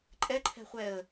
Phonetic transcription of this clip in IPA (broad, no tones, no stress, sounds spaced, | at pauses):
ǃʼ ɛ ǃʰ ɛ̤ χʷ ɛ ə̯